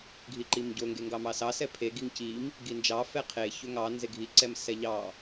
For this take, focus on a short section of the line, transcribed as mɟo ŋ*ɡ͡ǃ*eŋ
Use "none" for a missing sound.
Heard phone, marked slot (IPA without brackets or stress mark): ɡ